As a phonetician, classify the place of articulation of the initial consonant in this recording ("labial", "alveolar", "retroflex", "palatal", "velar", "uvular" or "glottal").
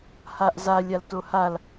glottal